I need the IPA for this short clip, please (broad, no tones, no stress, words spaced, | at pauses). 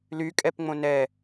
lykʼɛpŋ͡mõ nɛ